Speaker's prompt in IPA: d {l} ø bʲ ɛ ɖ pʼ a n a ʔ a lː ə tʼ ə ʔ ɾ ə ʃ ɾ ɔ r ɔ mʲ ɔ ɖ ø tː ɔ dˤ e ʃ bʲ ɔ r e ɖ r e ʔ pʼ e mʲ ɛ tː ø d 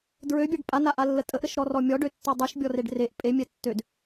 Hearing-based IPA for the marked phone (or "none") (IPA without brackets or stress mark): ɹ